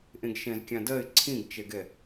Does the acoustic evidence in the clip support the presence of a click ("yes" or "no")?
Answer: yes